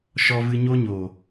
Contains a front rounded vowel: no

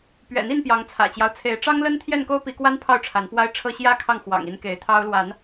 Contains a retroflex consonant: yes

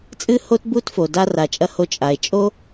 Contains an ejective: yes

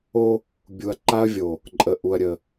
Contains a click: yes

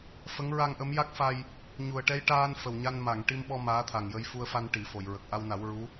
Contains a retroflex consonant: yes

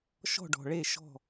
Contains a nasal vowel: no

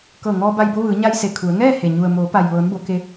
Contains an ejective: no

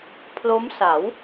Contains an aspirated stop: yes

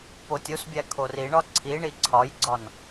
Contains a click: yes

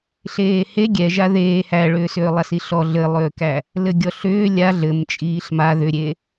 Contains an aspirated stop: no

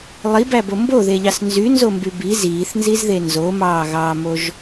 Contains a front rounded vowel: yes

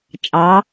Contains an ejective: yes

